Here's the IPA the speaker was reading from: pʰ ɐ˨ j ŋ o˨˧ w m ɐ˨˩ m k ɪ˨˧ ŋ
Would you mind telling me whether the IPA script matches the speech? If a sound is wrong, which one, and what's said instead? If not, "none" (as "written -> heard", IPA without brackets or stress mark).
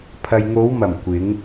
k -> kʷ